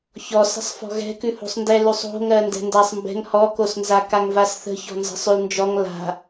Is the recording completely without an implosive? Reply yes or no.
yes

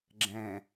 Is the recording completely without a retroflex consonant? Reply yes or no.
yes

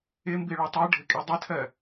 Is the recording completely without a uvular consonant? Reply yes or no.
yes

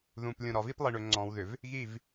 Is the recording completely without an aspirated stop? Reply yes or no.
yes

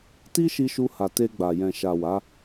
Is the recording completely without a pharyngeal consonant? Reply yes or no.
yes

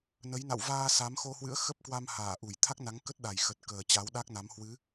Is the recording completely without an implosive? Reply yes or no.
no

